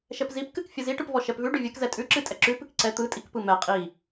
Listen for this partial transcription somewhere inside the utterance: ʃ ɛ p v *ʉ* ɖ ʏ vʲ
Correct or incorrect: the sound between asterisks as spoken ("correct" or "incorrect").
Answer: correct